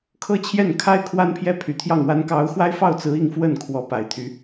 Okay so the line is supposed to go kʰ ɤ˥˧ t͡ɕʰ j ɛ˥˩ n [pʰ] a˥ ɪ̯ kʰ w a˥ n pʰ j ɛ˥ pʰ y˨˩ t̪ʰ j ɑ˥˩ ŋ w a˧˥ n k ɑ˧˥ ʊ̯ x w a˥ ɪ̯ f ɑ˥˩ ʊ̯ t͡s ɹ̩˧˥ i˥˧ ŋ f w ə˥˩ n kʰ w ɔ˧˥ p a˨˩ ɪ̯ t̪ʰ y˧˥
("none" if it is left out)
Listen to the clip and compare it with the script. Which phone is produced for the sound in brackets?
kʰ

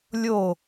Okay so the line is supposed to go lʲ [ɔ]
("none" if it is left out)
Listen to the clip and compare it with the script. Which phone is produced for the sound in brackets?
o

